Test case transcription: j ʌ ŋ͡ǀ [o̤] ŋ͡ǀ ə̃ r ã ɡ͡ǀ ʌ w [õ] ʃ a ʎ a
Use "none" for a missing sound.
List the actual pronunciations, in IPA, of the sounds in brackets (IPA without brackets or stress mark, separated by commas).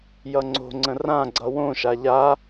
o̤, õ